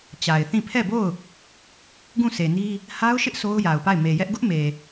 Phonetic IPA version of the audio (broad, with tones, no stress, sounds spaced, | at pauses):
t͡ɕ a˨ ɪ̯ θ ĩ˦˨ pʰ ɛ˦˨ b o˦˨ ʊ̯ | ɡ ũ˦˨ s e˨ n i˦ | h a˦ ʊ̯ ʃ ɪ˦ ʔ s o˦ ʊ̯ j a˨ ʊ̯ p a˦˨ ɪ̯ m e˨ j ɛ˦ ʔ ɡ ʊ˦ ʔ m e˨